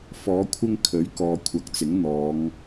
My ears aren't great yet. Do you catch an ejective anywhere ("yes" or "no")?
no